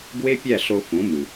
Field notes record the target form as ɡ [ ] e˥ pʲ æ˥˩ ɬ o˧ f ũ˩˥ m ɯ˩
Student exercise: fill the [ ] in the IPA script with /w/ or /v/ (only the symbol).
w